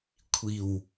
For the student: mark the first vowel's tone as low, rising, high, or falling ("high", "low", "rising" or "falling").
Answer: low